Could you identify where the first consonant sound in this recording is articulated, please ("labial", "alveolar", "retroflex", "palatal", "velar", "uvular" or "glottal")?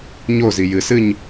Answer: palatal